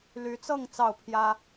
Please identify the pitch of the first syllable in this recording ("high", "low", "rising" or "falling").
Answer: rising